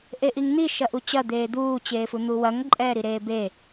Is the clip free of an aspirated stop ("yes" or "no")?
yes